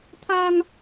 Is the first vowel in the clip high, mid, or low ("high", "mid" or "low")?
low